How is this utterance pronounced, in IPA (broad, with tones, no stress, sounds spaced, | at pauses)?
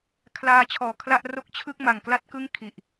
kʰ l aː˧ t͡ɕʰ ɔː˨˩ kʰ l a˥˩ ʔ r o˥˩ k̚ t͡ɕʰ ɯ˥˩ k̚ m a˨˩ ŋ k l a˥˩ t̚ k ɯ˥˩ ŋ kʰ i˨˩ ʔ